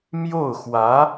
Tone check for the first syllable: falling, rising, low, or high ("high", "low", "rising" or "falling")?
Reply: falling